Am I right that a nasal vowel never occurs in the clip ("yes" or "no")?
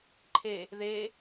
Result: yes